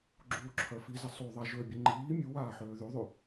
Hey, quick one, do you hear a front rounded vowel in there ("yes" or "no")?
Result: yes